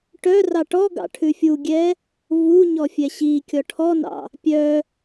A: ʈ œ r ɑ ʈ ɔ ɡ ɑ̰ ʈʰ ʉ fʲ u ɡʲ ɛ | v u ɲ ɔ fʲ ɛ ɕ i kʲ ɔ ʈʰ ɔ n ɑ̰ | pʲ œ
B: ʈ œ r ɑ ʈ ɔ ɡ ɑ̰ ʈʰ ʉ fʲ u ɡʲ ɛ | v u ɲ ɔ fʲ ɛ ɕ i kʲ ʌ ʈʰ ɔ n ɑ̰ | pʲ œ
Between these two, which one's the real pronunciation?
A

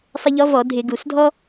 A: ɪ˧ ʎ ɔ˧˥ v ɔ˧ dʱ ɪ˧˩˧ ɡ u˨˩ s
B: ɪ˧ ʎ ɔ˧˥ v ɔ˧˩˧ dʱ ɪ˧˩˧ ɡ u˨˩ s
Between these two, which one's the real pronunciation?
B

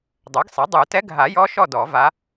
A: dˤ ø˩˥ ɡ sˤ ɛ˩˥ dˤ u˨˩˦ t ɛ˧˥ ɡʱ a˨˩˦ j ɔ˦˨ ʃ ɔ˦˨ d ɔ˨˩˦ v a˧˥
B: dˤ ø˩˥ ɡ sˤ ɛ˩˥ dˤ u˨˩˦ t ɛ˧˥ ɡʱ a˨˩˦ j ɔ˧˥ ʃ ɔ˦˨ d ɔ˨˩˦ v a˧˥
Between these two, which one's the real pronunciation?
B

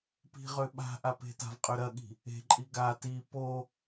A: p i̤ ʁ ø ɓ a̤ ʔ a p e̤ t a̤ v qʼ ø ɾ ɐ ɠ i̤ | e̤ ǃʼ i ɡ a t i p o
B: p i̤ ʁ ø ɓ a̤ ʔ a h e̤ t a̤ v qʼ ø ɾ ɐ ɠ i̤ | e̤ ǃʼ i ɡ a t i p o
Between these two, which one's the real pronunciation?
A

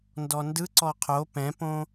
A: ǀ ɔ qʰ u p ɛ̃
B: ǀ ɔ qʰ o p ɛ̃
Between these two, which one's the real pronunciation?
B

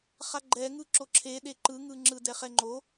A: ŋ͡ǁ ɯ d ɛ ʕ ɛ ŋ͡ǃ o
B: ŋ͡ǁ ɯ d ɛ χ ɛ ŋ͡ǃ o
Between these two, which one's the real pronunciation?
B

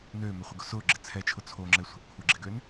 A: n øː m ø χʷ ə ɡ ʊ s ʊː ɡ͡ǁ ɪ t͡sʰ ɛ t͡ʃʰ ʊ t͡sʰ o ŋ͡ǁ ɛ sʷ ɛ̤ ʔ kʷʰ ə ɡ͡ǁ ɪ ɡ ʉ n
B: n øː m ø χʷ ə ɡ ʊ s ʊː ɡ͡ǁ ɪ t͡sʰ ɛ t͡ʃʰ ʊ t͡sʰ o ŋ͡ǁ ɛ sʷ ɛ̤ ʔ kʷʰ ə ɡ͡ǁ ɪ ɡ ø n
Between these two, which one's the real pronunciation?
B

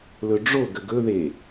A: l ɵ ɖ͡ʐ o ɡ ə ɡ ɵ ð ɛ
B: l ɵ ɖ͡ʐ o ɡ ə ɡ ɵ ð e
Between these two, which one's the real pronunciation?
B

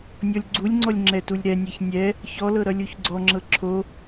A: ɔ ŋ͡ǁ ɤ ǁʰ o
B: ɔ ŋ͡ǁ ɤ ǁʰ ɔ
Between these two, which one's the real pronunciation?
A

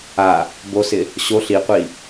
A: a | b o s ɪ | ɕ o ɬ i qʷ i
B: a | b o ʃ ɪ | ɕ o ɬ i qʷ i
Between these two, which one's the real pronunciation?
A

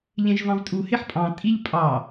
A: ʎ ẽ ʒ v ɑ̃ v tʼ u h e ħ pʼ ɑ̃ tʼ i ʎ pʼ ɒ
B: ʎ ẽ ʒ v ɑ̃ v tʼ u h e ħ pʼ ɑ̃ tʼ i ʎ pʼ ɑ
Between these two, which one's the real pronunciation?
B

